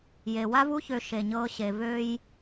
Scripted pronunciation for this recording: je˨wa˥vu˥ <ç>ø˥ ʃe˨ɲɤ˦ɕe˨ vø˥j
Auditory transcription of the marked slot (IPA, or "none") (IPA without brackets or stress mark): ç